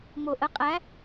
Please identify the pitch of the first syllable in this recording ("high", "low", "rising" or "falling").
low